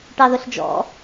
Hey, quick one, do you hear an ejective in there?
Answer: no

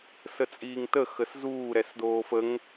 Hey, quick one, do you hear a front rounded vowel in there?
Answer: no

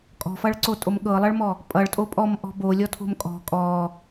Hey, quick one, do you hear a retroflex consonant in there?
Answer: yes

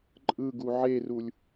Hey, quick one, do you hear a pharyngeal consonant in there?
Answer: yes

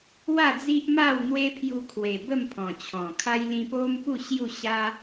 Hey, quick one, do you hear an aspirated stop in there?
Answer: yes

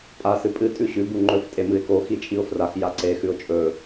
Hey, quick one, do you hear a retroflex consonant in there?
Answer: no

